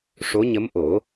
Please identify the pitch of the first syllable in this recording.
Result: rising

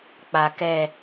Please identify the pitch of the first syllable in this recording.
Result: low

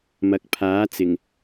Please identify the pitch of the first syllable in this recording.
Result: rising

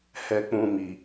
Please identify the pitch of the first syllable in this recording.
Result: high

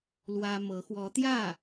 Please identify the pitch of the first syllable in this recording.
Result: high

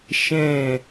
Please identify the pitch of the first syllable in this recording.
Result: falling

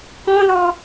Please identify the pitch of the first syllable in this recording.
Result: high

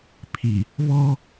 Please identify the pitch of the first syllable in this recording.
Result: low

